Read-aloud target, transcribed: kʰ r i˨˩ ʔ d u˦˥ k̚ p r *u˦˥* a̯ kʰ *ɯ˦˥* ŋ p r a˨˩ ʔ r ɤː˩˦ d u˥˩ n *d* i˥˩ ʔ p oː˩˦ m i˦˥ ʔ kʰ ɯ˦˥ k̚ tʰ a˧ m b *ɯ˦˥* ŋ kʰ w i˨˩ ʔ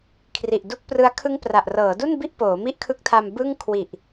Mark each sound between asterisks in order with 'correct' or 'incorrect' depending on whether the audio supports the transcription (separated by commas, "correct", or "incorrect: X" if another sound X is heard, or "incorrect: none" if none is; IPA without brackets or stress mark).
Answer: incorrect: ɯ˦˥, correct, incorrect: b, incorrect: ɯ˥˩